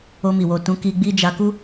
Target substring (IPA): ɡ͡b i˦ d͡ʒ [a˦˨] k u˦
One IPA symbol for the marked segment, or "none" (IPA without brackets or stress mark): a˧